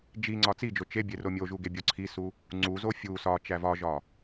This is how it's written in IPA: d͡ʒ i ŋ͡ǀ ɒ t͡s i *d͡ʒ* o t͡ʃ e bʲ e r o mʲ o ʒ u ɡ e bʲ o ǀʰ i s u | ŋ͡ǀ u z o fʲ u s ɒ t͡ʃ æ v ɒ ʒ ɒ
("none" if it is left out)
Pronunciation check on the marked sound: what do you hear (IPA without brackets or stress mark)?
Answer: d͡ʒ